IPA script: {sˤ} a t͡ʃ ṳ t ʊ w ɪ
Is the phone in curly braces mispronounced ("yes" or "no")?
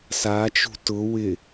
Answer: yes